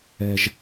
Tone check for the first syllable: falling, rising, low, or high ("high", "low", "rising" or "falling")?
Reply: low